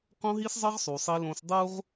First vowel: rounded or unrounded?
rounded